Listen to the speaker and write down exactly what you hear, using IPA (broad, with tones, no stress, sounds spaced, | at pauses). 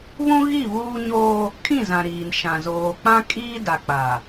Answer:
β ũ˦ ɣ i˦˨ β uː˦ ɲ oː˦ | kʰ ĩ˦˨ z ã˨ ɾ iː˨ n ʃ ã˨ z oː˨ k͡p ã˦ kʼ iː˦ d a˨ k͡p a˨